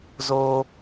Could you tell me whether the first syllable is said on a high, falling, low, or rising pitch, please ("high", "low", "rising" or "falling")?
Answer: high